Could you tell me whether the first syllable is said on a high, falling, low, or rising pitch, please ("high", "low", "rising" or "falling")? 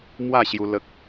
falling